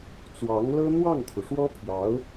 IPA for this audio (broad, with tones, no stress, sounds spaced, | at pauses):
t͡s w ɑ˧˥ ŋ l ɤ˥ n̪ w ɑ˥˩ ŋ t̪ʰ u˩ ʂ w ɔ˥ pʰ j ɑ˧˥ ʊ̯